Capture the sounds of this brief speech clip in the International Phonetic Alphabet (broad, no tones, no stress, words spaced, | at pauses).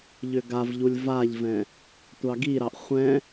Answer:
ʎʏɡavʎulʲ vaʎvɛ̃ | tʷɑɡiɾɑʔ χʷɛ̃